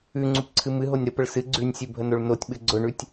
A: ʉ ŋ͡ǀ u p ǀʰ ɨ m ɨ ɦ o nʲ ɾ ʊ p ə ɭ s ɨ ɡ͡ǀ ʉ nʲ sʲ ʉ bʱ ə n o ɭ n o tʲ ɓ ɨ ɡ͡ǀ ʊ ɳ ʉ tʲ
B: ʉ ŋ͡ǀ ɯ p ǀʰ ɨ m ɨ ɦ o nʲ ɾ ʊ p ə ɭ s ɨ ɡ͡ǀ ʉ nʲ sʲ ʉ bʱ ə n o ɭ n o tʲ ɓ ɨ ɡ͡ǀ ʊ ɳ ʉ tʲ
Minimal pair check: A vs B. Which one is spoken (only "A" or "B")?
A